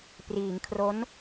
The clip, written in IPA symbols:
p r iː˩˦ ŋ kʰ r o˦˥ n

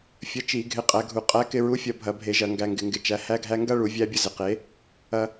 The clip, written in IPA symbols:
fʲ ə˨˥ t͡ʃ i˧˩˧ ɡʱ ɪ˨˥ qʼ æ˧ ɡʱ u˧˩˧ qʼ æ˨˥ k ɪ˧ ɹ u˨˥ fʲ ɐ˧ bʱ ɐ˧˩˧ bʱ e˧˩˧ ʒ ɐ˧˩˧ ŋ ɡ æ˧ ŋ ɡ ɪ˧˩˧ ŋ ɡ ɪ˧ t͡ʃ æ˨˥ h æ˥ ɡʱ æ˥ ŋ ɡ ɐ˥ ɭ u˧˩˧ vʲ æ˥ bʲ ə˥ z ɪ˨˥ q e˨˥ | ɐ˧

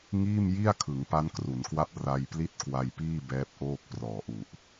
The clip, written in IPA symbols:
ŋ iː˥˩ m j i˥˩ a̯ kʰ ɯ˩˦ ŋ p a˦˥ n k r u˩˦ n k w a˦˥ p̚ r a˧ j p l i˥˩ t̚ k w a˧ j p iː˥˩ b ɛː˦˥ p̚ ʔ oː˥˩ k̚ p r ɔː˨˩ ʔ u˨˩ ʔ

